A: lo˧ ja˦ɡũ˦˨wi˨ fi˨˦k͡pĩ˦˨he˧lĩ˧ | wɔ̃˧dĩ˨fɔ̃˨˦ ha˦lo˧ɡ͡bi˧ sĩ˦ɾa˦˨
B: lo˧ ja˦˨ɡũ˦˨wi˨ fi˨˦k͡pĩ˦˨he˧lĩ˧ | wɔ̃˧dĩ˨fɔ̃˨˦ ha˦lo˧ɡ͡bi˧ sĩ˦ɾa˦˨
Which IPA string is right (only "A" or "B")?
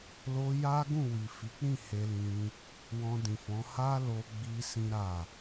A